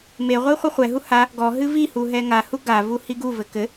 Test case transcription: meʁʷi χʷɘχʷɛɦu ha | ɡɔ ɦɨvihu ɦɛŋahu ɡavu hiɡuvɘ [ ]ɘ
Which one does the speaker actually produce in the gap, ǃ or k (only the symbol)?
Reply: k